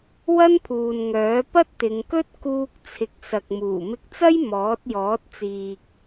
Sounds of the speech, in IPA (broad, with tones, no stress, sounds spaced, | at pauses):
w ɐ˥ n pʰ uː˨ n ŋ œː˨˥ p ɐ˥ t̚ t̪ ɪ˨˧ ŋ k ɵ˥ t̚ k uː˧ k̚ t͡sʰ ɪ˨˥ k̚ s ɐ˨ k̚ m uː˨˩ m ɪ˧ k̚ t͡s ɐ˥ j m ɔː˨˥ t̚ j ɔː˨˥ t̚ t͡s iː˨ k̚